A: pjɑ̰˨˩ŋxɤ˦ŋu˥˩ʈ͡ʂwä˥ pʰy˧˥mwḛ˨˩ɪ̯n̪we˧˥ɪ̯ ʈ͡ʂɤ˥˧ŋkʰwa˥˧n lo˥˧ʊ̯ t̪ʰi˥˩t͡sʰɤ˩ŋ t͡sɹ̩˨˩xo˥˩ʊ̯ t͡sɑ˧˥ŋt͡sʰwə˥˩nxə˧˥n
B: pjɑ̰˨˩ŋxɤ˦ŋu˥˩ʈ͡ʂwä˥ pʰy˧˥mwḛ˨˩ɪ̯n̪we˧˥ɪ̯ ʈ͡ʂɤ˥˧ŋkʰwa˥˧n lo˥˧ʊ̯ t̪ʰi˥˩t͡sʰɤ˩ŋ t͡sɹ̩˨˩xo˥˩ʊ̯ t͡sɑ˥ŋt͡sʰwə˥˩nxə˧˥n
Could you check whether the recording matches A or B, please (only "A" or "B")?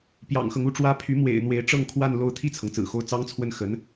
B